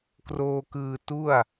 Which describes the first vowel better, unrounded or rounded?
rounded